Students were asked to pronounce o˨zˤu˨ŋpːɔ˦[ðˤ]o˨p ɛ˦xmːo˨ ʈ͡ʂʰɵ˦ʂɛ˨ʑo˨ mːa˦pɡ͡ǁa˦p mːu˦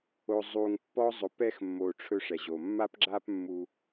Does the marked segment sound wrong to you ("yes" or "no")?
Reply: yes